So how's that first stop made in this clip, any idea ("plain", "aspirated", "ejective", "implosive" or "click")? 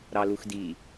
plain